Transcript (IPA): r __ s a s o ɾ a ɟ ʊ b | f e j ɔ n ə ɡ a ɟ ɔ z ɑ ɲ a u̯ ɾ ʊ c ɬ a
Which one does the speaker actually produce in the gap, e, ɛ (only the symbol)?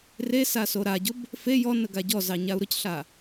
e